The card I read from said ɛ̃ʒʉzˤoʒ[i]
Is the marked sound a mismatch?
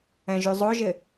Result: yes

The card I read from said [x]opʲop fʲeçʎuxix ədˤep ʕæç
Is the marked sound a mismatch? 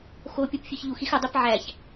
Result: no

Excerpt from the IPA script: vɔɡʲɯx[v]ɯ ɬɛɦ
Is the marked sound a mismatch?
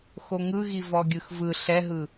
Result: no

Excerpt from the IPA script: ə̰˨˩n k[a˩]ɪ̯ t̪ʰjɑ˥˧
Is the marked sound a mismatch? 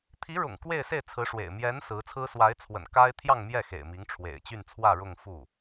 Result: yes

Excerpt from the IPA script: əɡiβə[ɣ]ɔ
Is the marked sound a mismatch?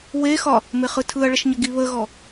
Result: no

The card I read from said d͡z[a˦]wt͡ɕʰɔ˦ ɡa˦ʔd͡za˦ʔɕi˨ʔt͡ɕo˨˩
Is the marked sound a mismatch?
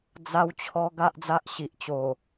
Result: no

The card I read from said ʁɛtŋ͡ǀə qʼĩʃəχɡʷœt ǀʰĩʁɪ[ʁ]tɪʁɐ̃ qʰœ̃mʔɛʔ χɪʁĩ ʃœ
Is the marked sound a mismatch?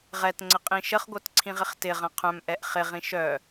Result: yes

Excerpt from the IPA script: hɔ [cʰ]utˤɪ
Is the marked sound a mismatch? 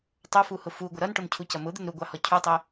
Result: no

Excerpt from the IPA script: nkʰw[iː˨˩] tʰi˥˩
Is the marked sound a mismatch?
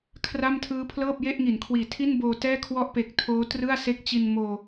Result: no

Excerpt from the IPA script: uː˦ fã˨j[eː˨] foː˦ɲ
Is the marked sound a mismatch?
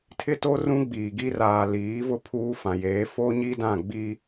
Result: yes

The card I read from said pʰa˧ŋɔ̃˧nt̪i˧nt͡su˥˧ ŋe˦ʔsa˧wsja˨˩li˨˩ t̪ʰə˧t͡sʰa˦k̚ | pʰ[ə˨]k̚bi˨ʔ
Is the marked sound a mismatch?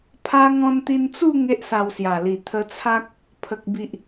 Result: no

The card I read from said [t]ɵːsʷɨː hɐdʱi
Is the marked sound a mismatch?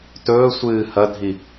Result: no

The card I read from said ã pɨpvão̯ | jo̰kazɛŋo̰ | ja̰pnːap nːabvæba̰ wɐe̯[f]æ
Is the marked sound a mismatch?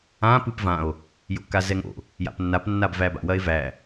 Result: yes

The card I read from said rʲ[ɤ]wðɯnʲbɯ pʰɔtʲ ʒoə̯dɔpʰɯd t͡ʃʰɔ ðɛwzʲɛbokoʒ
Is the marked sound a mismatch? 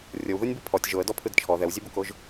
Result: no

